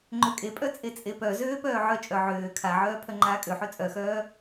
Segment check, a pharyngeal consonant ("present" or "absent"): present